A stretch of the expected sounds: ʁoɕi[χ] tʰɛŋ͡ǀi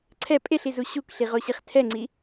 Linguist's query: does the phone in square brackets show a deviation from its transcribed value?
no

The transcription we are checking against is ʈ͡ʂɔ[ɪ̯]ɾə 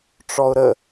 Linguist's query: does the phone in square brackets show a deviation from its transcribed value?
yes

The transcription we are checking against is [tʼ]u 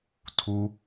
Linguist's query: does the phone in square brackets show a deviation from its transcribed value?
yes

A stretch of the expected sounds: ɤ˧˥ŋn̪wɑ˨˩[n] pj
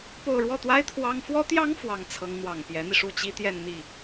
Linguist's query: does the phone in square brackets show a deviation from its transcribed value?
yes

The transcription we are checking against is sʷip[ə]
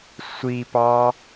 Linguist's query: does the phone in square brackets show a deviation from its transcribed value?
yes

